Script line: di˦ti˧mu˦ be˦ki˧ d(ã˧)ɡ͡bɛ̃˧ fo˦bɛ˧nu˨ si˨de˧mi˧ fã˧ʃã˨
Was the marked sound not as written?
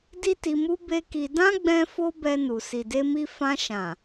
yes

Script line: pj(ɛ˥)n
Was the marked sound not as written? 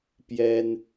no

